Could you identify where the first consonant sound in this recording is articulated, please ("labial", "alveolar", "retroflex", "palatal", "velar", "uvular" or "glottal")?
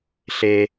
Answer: alveolar